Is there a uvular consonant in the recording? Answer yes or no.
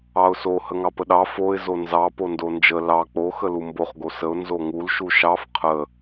yes